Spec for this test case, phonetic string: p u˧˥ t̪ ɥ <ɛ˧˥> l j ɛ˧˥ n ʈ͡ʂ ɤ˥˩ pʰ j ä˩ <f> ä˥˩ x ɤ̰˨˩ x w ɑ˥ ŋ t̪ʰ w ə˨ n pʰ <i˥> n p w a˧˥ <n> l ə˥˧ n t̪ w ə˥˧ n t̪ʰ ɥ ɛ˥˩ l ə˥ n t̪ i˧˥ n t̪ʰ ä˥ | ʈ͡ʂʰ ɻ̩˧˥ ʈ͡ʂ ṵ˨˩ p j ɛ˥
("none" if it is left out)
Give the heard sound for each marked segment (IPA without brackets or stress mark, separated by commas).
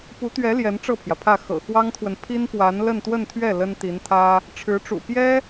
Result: ɛ˧˥, pʰ, i˥, n